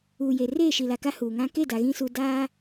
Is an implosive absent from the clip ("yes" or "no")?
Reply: yes